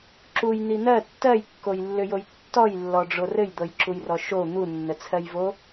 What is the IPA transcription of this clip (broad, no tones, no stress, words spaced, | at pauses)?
ǁujn̪i n̪ɜ tːɜjkːojlːʏjoj tːɔjlːɔɖ͡ʐo rɘjd̪ɤjǁujrɔ ʃo n̪unːət͡sʰɜjvo